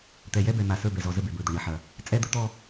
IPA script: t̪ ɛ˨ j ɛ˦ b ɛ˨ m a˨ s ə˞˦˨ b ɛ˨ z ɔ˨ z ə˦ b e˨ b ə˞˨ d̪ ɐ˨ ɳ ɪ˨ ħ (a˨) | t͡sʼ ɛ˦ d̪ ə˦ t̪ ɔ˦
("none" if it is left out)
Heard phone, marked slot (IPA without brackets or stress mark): ɐ˨